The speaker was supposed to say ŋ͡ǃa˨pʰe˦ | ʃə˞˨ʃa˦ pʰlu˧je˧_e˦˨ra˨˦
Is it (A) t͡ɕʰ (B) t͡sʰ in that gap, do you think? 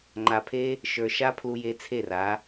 B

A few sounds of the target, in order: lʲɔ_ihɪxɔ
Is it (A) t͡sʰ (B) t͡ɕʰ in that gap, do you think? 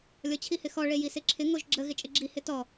B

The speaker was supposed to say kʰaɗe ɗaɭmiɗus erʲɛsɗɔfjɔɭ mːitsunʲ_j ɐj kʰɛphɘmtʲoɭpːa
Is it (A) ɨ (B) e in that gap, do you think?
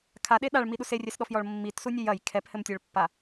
A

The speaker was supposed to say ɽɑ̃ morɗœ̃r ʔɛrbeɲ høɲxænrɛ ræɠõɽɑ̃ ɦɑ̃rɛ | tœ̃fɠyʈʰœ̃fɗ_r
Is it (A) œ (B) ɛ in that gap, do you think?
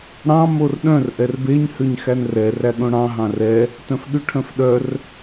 A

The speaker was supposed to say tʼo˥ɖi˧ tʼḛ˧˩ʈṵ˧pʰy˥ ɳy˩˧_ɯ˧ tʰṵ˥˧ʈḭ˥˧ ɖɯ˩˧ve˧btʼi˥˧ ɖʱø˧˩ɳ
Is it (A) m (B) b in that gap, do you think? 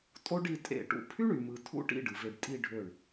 A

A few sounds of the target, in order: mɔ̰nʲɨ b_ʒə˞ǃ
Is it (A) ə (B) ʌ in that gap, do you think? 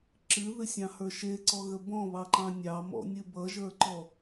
B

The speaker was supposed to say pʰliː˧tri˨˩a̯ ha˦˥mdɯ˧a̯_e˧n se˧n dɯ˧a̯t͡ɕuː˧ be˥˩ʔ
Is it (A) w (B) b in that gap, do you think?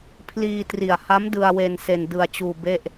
A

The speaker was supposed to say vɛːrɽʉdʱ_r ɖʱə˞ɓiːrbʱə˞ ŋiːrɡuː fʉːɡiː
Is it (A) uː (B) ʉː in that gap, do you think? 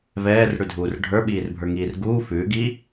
A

